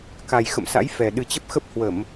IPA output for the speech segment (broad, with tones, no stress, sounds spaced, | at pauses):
k a˨˩ j x ə̰˧˨ m s a̰˧˥ j f ɛ˨˩ ɗ ɨ˨˩ t͡ɕ ə˦˥ p̚ x ə˦˥ p̚ h w ə˧˩˨ m